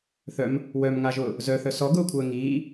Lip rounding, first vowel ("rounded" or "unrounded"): rounded